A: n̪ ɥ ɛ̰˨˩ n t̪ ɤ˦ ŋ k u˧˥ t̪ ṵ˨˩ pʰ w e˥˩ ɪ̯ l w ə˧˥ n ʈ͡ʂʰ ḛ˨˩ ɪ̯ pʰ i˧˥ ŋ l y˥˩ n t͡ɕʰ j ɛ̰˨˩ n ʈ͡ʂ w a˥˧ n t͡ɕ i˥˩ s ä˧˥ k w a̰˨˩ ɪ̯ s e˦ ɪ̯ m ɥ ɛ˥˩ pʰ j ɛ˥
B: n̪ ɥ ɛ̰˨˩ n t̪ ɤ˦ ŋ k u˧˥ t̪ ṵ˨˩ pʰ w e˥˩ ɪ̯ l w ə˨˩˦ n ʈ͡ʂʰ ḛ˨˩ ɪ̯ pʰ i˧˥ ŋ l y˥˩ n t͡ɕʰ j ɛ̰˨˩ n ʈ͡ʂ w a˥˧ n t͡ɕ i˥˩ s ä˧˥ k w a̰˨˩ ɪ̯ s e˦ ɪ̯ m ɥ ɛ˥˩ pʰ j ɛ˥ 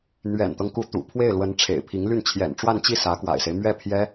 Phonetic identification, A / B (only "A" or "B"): A